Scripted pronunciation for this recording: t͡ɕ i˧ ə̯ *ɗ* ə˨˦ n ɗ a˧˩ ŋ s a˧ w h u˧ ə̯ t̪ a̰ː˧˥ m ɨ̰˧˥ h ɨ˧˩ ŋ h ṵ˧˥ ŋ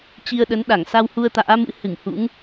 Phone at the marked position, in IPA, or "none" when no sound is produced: ɗ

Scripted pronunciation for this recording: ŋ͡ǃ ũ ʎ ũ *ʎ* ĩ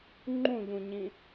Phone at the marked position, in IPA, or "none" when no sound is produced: ɲ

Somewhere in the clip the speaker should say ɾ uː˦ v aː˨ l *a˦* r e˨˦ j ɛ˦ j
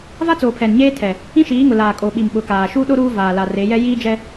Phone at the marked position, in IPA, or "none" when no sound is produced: a˨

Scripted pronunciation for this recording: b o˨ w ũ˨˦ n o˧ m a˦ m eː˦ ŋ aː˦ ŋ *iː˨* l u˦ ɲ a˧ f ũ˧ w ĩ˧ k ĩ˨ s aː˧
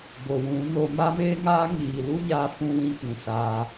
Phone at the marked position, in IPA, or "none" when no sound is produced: iː˨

